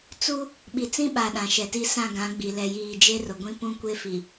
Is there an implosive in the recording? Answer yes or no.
yes